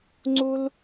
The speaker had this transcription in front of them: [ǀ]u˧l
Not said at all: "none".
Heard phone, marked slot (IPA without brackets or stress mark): ŋ͡ǀ